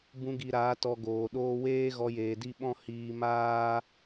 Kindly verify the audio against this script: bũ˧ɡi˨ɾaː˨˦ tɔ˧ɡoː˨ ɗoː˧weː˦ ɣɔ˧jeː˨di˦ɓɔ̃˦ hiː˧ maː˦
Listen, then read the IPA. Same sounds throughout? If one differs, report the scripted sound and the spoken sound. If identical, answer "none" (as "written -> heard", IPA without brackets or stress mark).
none